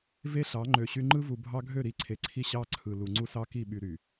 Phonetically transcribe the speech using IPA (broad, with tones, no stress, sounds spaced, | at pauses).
v e˦ ɬ ɑ˨˦ ŋ͡ǃ ø˨ ɕ y˦ ŋ͡ǃ ɯ˦ v u˨ bʱ ɑ˦ ɡʱ ø˦˨ ɾ i˨˦ ǀʰ e˨ ǀʰ i˦ ɕ ɑ˦ ǀʰ ɯ˨ l u˨ ŋ͡ǀ u˦ s ɑ˦ k i˦˨ ɓ y˦ ɾ y˨